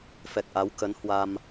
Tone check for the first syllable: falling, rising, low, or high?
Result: low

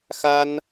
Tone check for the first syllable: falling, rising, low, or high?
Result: high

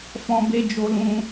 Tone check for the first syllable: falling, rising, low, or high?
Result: high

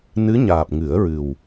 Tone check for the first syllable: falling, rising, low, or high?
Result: rising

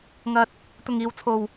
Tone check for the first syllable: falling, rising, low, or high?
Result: low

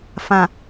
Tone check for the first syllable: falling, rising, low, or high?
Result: low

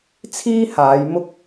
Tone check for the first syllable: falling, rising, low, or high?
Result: high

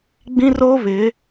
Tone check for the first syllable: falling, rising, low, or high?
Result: high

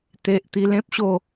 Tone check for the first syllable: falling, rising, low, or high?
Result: low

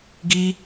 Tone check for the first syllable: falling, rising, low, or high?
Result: high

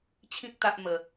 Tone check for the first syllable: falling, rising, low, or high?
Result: high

